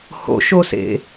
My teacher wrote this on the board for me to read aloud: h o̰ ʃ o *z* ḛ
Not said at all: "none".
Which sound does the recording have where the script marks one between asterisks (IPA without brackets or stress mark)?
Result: s